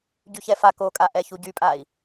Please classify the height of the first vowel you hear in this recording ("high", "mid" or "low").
high